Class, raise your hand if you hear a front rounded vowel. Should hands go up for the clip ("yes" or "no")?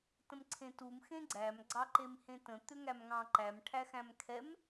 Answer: yes